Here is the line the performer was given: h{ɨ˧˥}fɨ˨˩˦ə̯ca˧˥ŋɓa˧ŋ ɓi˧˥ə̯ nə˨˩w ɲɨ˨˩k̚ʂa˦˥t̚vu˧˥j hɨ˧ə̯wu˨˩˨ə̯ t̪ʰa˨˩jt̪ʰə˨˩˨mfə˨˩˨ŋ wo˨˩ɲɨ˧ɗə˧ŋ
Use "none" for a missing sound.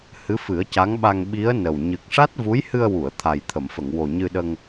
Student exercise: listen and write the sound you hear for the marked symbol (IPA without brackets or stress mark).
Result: ɨ˧˥